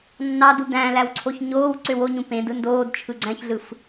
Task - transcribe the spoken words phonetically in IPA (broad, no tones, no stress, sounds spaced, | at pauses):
nː ɑ d u d æ̃ l æ w ǀʰ o ç ɲ oː w ǀ ø w o ɲ ũ p ẽ d ɯ n d oː d t͡ʃʰ ɯ ɡ͡ǀ æ̃ ç ɮ ɯ f